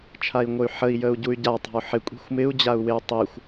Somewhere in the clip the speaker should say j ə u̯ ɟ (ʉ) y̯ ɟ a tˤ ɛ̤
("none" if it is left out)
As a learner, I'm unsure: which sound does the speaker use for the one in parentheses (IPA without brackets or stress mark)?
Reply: u